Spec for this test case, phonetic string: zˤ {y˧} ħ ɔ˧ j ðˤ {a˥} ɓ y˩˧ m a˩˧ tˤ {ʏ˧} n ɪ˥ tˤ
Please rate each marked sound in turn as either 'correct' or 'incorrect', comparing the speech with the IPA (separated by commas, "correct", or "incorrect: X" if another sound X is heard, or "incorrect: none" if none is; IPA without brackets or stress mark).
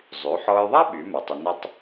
incorrect: y˩˧, correct, correct